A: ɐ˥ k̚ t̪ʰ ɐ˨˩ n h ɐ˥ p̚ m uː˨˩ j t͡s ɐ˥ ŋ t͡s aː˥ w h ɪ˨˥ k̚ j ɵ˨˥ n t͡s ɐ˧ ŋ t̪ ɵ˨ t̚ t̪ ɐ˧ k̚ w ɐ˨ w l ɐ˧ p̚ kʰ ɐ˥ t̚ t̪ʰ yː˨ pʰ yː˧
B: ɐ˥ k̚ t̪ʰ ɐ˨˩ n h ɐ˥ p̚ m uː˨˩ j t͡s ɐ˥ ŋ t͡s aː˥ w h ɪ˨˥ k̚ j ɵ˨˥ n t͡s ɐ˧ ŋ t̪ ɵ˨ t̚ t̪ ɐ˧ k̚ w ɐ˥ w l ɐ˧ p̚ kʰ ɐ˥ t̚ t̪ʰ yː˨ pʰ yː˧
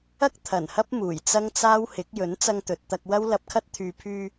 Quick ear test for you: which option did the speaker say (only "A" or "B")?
B